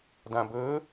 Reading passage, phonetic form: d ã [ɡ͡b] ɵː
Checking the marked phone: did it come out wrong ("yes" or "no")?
yes